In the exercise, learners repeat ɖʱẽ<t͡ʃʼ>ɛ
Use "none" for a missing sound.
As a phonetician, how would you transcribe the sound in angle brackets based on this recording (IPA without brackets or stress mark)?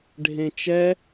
t͡ʃ